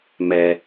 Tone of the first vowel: low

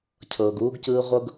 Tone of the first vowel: low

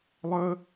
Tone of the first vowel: high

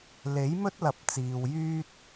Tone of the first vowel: rising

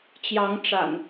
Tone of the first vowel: rising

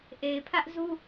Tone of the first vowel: low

